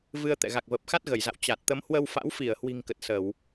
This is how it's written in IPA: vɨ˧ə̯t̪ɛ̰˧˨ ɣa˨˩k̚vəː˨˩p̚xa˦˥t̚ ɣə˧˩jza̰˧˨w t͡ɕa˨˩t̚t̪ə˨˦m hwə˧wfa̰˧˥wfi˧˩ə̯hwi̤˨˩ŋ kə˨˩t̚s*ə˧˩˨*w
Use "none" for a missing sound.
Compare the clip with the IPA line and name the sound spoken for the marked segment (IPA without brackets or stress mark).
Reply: ə˧˩˨